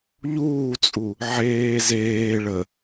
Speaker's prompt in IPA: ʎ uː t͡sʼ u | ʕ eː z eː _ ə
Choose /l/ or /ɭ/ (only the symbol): ɭ